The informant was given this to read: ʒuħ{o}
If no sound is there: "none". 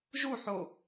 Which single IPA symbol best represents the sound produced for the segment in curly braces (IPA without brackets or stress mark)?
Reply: o